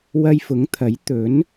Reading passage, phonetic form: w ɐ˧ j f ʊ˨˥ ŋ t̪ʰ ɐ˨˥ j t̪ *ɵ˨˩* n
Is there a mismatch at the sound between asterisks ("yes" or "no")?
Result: yes